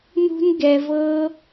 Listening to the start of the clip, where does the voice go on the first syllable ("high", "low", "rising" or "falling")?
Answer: high